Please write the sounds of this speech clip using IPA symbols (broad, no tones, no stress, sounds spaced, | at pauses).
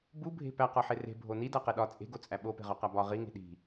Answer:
b u bʱ e̤ p æ q ɒ ħ e r e̤ bʱ o n i d æ q e ɗ ɒ t͡sʼ e̤ ɡ o t͡sʼ æ ɓ o p e̤ ʁ ɒ q æ b ɒ ʁ i ŋ e̤ ɗ i̤